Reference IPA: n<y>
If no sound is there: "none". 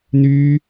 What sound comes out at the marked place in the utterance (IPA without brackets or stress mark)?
y